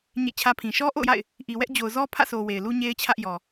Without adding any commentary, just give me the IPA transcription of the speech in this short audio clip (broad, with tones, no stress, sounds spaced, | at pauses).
ɲ ḛ˦˨ t͡ɕʰ ä˦ pʰ ĩ˨ ʃ ɔ˦ ʔ o̰˦˨ ʊ̯ j a̰˦˨ ɪ̯ | ʔ i˨ w ɛ˦ ʔ d͡ʑ o˨ ʊ̯ z ɔ˦ pʰ ä̰˦˨ sʰ o˨ w e˨ ɪ̯ l u˦ ɲ e˦ ɪ̯ t͡ɕʰ ä˦ ʔ j ɔ˨